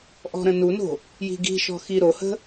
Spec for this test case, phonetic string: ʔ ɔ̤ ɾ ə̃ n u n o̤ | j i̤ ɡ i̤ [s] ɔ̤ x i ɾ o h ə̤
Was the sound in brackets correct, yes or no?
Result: no